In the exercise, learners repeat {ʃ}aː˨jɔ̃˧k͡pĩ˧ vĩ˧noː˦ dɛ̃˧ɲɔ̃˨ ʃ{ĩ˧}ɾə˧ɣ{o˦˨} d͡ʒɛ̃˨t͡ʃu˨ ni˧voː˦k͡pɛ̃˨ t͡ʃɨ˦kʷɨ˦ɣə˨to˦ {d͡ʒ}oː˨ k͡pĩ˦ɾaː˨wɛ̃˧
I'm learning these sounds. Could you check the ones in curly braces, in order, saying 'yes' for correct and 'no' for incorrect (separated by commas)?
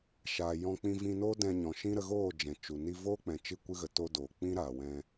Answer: yes, no, no, no